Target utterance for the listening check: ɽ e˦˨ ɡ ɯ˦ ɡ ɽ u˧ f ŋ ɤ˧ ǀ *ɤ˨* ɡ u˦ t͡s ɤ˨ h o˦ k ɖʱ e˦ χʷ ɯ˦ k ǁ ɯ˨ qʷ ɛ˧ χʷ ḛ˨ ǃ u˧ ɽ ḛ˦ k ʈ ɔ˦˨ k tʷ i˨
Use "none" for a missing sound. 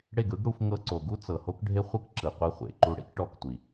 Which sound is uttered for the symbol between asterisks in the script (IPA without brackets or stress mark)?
o˨